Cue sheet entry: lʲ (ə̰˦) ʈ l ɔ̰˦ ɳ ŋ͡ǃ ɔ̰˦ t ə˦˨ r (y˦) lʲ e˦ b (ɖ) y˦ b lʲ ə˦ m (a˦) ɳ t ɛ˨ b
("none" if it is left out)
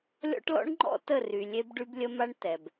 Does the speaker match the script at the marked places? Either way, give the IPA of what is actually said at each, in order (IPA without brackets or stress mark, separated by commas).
ɔ̰˦, y˨, ɖ, a˦